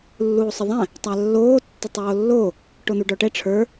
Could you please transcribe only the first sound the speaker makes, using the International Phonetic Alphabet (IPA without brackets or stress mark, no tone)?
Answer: lː